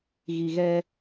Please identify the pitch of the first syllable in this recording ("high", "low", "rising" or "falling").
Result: low